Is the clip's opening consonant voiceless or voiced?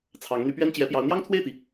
voiceless